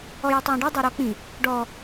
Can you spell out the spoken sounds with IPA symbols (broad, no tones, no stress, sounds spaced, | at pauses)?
ɔ j e tˤ w ɔ̃ ɖ ɨ dˤ o ɾ ɔ k͡p ĩ | ɖ ɔ